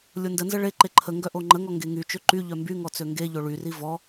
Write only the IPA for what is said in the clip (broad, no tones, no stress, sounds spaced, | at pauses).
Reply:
lʲ o n d ə n z ə ɭ e ǃ e ǃʰ ə ŋ ɡ œ ʔ o ŋ͡ǃ ə ŋ ɔ ŋ ɡ e ŋ y t͡ʃ ø ǃ y ʎ œ m b y ŋ ɔ t͡s ø ŋ ɡ e ʎ o ɭ y r i v ɔ